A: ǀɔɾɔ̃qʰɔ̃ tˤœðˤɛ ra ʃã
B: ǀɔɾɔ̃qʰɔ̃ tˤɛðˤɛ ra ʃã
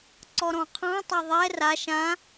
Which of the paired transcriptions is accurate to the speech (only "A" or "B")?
B